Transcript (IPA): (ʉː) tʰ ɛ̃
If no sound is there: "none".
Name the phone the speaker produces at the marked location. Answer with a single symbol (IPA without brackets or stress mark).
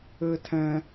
ɘː